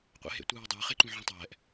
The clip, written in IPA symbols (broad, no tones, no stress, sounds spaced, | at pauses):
qʷ ḛ ɦ ḛ tʷ ɯː ʊ̯ dˤ ɯː χ e ǃ ũ ʕ ɛ̃ tˤ ɛː ʔ